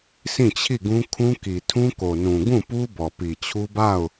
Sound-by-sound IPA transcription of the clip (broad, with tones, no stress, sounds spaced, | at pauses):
sʰ ĩ˦˨ t͡ɕʰ i˦˨ ɡ ũ˦ kʰ ũ˦ k i˨ tʰ ũ˦ k o˨ n ũ˨ ɡ ũ˦˨ p u˦ b ɔ˨ p i˨ t͡ɕʰ u˦ b a˦˨ ʊ̯